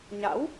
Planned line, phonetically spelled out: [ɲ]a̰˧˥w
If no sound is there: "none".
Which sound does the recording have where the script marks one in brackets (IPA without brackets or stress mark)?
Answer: ɲ